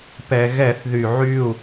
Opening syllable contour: low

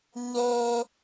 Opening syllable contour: high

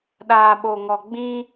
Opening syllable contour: low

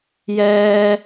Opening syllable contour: high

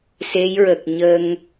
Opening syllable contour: rising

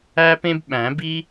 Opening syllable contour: high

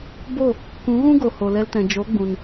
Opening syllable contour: falling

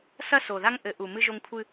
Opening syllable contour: high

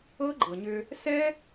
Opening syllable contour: high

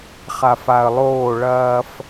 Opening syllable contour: low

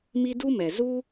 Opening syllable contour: high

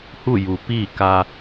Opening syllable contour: falling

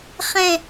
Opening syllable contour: falling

